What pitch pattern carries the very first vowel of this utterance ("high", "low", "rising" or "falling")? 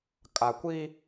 low